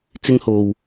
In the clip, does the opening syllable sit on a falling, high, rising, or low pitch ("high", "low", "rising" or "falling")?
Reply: high